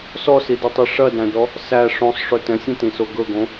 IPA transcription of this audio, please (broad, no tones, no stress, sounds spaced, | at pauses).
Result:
s ɔ s i d ɵ tˤ i ʂ ɐ d æ̃ d ɔ | s æ ʂ õ sˤ ʂ ɵ t ɛ̃ sʲ ɐ̃ t ĩ s o ɡ ɵ ɡ õ